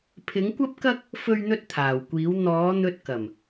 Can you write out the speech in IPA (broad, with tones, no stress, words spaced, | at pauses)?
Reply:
pʰɪ˨˥ŋkʷɐ˥p̚kɐ˥k̚ | fɵ˥ɥn̪ɵ˥t̚t̪ʰaː˨˩wkʷiː˨˥w n̪ɔː˨˥ n̪ɵ˧t̚kɐ˨˩m